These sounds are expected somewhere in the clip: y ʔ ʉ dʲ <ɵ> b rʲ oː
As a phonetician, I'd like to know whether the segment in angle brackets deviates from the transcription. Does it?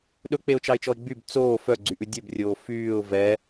no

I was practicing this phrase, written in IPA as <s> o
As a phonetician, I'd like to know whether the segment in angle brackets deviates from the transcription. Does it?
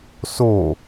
no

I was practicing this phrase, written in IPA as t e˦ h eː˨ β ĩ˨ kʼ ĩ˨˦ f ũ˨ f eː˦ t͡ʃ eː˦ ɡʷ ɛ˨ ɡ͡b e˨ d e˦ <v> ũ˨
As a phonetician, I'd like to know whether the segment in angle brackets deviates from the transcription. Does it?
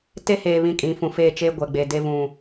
no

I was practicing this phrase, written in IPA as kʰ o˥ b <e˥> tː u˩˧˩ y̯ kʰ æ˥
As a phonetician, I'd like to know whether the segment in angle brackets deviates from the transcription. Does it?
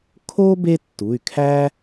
no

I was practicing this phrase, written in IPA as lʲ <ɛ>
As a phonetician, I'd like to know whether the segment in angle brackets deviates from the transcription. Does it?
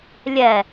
no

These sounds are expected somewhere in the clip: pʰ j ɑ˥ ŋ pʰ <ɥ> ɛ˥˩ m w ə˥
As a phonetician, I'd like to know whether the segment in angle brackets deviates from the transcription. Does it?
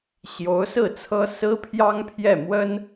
yes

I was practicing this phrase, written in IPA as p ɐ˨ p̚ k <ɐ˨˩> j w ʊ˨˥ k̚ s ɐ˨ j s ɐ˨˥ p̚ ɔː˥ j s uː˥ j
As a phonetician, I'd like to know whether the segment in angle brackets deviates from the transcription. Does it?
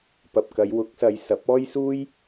yes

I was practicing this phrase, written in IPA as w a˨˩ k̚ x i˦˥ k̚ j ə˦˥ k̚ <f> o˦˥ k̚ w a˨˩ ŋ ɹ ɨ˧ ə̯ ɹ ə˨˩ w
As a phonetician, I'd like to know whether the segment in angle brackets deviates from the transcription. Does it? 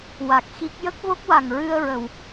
yes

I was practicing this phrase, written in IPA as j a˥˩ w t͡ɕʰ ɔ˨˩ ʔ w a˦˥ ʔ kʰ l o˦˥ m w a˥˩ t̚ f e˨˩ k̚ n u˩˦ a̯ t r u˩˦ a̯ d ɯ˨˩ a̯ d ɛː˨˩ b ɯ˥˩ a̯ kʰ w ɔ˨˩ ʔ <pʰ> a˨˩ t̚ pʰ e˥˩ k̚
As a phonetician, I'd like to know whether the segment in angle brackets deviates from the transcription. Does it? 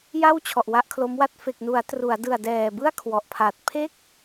no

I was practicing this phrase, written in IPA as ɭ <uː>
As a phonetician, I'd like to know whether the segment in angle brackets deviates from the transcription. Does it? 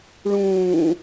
yes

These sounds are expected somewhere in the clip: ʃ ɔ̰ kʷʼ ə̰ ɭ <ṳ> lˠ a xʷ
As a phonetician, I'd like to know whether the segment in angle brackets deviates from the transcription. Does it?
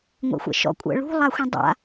no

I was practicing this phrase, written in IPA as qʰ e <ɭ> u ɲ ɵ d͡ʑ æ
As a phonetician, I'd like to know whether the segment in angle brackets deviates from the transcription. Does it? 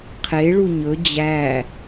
no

